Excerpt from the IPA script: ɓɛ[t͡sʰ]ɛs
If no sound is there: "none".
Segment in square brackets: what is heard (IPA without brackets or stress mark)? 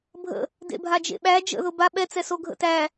t͡s